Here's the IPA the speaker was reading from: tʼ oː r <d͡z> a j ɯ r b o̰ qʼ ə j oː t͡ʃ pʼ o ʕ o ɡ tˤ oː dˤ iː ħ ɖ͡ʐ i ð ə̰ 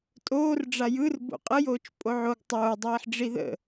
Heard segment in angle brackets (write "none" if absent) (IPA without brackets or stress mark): ɖ͡ʐ